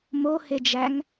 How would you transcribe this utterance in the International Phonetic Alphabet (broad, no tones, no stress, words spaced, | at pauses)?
mohed͡ʒæŋ